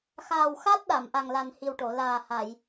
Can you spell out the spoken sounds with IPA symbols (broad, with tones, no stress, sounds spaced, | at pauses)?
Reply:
x aː˨˩ w x a˦˥ t̚ ɗ a˨˩˨ m ʔ a˨˩ ŋ l a˨˩ n h i˨˩ w ʈ o˨˩˨ l aː˨˩ h a˨˩˨ j